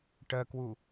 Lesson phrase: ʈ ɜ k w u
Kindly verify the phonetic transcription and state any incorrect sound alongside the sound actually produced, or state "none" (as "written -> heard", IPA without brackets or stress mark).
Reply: none